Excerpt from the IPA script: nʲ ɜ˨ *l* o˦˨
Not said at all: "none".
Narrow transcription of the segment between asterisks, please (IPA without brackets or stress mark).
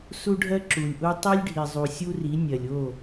lʲ